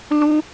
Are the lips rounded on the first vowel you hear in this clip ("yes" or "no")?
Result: yes